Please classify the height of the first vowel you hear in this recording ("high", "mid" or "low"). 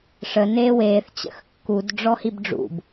mid